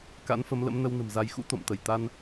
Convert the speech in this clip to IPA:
k a̰˧˥ n f ə˨˦ m l ə̰˧˥ m n ə˧ w n ə̤˨˩ m z a˨˦ j x ṵ˧˥ t̪ o̰˧˨ m t̪ ə˧˩ j t̪ a˧ n

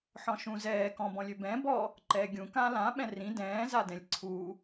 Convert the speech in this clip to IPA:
ħ ɔ̃ ʃ ũ z ɛː k ɔ̃ b ɔ̃ lʲ ø b ɛ̃ː b ɔ | ǃ ɛː ɡʲ ũ k ãː l ã ɓ ɛ̃ r ĩ d ɛ̃ː z a d ɛ̃ lʲ ǀʰ u

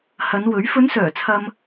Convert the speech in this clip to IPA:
h ɐ˨˧ n w ɵ˨˥ ɥ f ɵ˨˧ n s œː˨˩ t͡sʰ ɐ˨ m

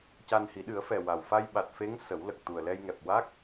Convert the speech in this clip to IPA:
c a˧ n h i˨˩˦ ɗ ɨ˨˩˦ ə̯ f ɛ˨˩ w a˨˩ w f a˧ j ɓ a˨˩ t̚ f e˧˥ ŋ s ə˨˩˦ w l ə˨˩ k̚ t̪ u˨˩ ə̯ l ɛ˧ j ŋ ɛ˨˩ p̚ w a˦˥ k̚

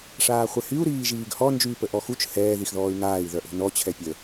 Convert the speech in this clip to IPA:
ʂ aː χʷ ɛ h y u̯ ɾ iː ʒ iː ɡ h ɔ n d͡ʒ yː p ə ʔ ɔ x u t͡ʃ h ɛː ð i x ð ɔː y̯ ŋ aː i̯ ð œ ʔ o̤ n ɔ t͡ɕʰ ɛ pʲ ə

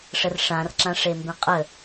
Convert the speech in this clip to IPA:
ʂ ə r ʂ ã r ǁ ã ʂ e m b ẽ qʼ ə

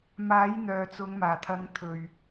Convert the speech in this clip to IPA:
m aː˨˥ j n̪ œː˨ t͡s ʊ˨˧ ŋ m aː˨˩ t̪ʰ ɐ˨˧ ŋ t̪ʰ ɵ˨˩ ɥ

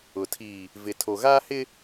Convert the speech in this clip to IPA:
ʊ˨ tʰ iː˨ | v ɪ˨ tʰ o˨ ɣ aː˦ h ɪ˦

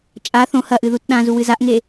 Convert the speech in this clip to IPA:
t͡ʃʼ a θ õ h ɐ ʔ ɨ ð u t ɗ ã z u w ɨ z a ʔ ŋ e

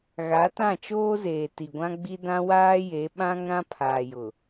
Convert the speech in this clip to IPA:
ɣ a˨˦ t ã˦˨ t͡ʃ oː˦ z eː˨ t i˨ ɡʷ ã˦ ɡ͡b i˦ d ã˦ w aː˦ j e˨˦ ɓ ã˦ ŋ ɾ ã˦ pʰ aː˨ j ʊ˨

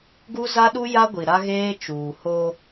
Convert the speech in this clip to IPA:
ɡ u˦ z a˦ ɗ u˦ j a˦ ɡʷ i˨ ɾ a˦ ɣ eː˦ t͡ʃ uː˨ h o˦

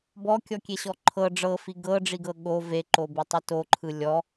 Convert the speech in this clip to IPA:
b ɔ kʲ ɔ kʲ e ɕ ɔ ǃʰ ɤ ɖ͡ʐ ɤ f i ɡ ɤ ɖ͡ʐ i ɡ ɤ ɠ o v e ǃ o b i tˤ ɯ t o ǃʰ ɯ lʲ ɔ

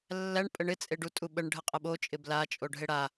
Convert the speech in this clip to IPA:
lː æ ɳ pʼ ə ɳ ɪ t͡sʼ e ɖ u tʼ u ɓ ə ɳ ɖʱ ə qʼ ə ɓ o t͡ʃʼ ɪ b l a t͡ʃʼ o ɖʱ e ɽ a

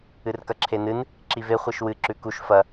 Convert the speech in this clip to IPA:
ɨ r k ɐ ǁʰ e n ɨ n | ǁ i v e χʷ i ʃ w ɨ ǁ ʉ k u ʃ f ɐ

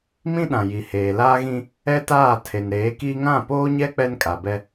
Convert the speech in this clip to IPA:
m ĩ˦ ɗ ã˨ j i˨ h eː˨ l aː˦ ɣ ĩ˦ | ɛ˦ t aː˦˨ tʰ e˨ n ɾ eː˨˦ k iː˦ ŋ ã˦˨ p oː˦ ɲ ɛ˦ k͡p ɛ˦ n kʼ a˨ b ɛ˦

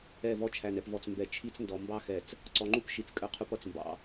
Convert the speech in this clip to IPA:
ɛ˦˨ v ɔ˦ t͡ʃʰ æ˨ n ɛ˨ p v ɔ˨ t͡s m b ɛ˨ t͡ʃʰ i˦ t͡s n d ɔ˨ m b ɑ˦ x ɛ˨ t͡s | ǀ ɔ˨ ŋ͡ǃ u˦ p ʃ i˨ t͡s kʼ ə˦˨ qʰ u˦ p ʌ˨ t͡s m b ɑ̰˦

